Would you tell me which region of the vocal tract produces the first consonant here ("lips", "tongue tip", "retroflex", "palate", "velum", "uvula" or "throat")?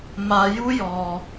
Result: lips